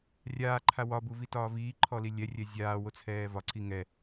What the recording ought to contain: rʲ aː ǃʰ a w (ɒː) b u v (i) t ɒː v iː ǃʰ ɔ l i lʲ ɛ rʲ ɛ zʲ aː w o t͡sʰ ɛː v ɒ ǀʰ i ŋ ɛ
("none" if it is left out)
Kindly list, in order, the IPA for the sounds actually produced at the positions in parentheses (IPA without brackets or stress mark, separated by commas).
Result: ɒ, i